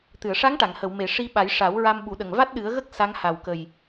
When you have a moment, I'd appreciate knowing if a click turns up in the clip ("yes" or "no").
no